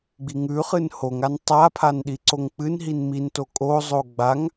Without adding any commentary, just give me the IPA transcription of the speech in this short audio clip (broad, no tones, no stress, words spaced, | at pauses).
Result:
ɡ͡biŋʉχɨn hoŋan tˤapʰan ɗiǀoŋk͡pɨnɦin minto kʼozˤo ɡ͡baŋ